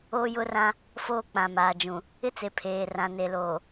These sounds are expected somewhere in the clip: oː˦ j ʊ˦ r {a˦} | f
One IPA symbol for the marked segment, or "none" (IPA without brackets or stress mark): ã˦